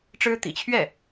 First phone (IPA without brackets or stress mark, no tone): ʈ͡ʂ